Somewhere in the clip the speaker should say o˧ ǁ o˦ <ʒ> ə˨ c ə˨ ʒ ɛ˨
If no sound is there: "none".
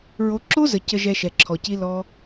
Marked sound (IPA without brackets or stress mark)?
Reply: z